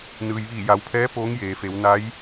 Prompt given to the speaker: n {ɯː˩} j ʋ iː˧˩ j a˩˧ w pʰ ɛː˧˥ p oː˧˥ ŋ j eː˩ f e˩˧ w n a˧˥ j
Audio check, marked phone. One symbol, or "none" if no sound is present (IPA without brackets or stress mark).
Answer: ɯː˩